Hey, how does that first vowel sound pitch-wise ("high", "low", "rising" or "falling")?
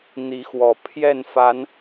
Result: rising